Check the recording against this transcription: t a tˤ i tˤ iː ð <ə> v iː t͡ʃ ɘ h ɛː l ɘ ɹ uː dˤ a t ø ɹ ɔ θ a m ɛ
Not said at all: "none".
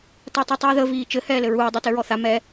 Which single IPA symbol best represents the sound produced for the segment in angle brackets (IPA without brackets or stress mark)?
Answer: ə